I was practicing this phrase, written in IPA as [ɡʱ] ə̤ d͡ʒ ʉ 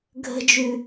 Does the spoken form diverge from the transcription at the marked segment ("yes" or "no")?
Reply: no